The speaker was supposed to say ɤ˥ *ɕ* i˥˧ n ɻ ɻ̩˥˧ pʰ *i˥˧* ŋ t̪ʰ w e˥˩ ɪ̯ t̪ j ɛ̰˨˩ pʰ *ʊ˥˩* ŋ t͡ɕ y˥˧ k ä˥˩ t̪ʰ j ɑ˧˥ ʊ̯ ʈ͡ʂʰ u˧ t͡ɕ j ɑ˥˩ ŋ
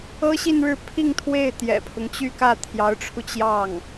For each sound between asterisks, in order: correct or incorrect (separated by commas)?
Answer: correct, correct, incorrect